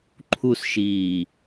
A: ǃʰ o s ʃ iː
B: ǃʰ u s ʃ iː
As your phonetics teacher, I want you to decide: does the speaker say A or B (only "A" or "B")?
B